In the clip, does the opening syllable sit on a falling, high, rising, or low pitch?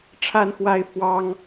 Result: high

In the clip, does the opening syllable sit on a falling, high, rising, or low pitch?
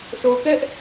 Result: low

